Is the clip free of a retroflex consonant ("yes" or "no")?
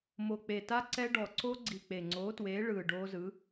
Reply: no